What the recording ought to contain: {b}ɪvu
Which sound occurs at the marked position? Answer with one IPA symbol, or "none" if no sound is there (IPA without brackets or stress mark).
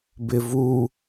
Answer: b